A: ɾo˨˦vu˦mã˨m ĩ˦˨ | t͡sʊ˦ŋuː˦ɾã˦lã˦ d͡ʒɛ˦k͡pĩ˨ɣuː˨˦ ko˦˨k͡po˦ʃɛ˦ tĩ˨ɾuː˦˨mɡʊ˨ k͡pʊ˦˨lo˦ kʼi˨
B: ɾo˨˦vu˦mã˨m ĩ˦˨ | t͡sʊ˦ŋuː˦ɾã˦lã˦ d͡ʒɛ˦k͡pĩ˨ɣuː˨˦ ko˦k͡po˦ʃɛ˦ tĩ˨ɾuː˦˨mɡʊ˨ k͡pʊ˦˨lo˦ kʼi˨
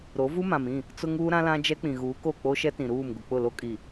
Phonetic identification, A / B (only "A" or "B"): A